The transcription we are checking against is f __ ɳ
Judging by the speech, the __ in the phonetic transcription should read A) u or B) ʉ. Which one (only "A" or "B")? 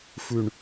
B